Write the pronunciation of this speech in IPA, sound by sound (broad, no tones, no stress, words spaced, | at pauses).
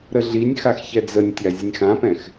ɾəɮinʲxax çɛd͡zənʲtʲa zʲənʲxãpɛ̃x